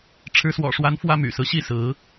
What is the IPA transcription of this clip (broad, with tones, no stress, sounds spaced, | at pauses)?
ʈ͡ʂʰ ɻ̩˨˦ s w ɔ̰˨˩ ʂ w a˨˦ n f w ä˦ m y̰˨˩ s ɹ̩˦ ɕ i˥˨ s ɹ̩˨˦